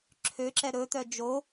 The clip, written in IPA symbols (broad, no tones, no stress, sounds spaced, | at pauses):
ǁʰ ø ǁ ɛ ɾ ɵ t̪ œ d͡ʒ o